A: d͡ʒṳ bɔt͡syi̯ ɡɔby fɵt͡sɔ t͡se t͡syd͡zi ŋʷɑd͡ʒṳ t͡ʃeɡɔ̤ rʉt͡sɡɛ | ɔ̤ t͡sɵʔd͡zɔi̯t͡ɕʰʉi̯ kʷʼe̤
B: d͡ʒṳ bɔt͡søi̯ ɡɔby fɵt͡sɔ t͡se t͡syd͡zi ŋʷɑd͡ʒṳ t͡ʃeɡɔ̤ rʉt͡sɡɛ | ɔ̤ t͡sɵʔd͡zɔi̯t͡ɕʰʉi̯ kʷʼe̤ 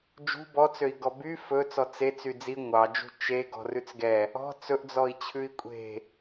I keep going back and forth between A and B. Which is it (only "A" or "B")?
B